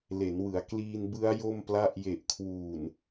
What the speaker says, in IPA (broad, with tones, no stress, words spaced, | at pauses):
le˩˦nwɯ˩˦a̯ kliː˧nbɯ˦˥a̯ jo˥˩mpla˥˩ʔ je˨˩ʔkʰwuː˨˩n